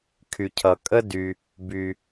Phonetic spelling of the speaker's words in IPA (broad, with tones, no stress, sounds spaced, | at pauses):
kʰ y˩ cʰ ʌ˩ kʼ ə˥ d y˩ | b y˩